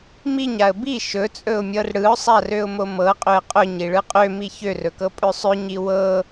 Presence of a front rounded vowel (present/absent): present